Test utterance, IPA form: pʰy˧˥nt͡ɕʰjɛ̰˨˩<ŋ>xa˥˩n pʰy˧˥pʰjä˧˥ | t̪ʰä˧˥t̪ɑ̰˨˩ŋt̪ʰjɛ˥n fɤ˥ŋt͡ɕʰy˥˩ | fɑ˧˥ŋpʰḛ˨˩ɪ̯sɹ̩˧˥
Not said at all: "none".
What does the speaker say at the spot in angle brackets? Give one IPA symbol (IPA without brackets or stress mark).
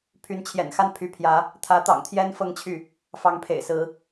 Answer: n